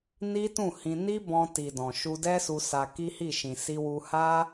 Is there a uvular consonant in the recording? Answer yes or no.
no